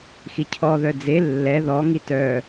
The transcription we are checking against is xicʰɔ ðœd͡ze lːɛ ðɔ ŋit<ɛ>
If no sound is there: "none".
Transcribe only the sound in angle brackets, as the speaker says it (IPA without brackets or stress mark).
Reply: œ